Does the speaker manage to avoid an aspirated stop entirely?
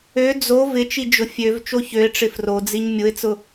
yes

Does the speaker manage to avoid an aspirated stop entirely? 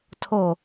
no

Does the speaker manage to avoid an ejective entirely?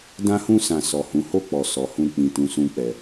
yes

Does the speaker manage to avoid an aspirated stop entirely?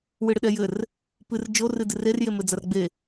yes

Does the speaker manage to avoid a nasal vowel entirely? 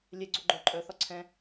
no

